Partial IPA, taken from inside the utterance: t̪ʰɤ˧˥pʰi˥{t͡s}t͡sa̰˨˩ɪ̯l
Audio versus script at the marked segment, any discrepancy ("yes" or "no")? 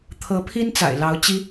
yes